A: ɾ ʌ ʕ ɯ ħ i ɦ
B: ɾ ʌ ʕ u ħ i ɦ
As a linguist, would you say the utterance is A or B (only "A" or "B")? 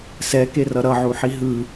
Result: B